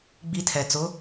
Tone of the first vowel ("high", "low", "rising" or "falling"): high